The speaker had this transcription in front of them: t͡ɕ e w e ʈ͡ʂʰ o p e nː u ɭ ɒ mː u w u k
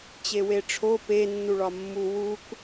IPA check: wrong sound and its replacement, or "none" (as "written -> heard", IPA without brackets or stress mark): none